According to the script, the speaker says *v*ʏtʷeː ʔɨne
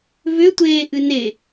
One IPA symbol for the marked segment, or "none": v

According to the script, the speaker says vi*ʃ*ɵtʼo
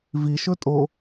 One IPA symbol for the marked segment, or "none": ʃ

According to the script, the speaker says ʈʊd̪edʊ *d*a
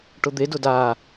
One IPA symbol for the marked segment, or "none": d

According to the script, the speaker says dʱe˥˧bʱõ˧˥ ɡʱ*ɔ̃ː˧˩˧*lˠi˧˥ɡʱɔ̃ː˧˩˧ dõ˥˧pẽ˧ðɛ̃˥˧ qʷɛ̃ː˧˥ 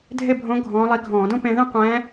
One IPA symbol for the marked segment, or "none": ɔ̃ː˧˥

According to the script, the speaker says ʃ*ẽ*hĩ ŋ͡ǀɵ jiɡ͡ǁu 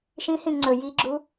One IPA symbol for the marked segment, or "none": ĩ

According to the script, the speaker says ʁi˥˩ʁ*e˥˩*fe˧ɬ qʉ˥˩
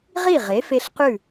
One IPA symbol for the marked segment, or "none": e˩˥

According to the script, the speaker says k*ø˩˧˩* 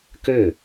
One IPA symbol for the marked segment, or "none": ø˥˩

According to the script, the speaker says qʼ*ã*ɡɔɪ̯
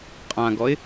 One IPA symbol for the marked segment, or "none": ã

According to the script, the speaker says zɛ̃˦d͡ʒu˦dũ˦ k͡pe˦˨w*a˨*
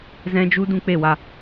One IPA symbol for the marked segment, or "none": a˧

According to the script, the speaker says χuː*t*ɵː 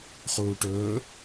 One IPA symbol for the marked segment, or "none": ʈ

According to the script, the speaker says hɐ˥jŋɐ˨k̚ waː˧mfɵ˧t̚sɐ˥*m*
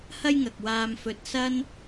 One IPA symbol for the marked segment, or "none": n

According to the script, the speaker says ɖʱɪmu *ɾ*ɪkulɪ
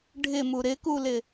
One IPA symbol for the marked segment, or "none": ɾ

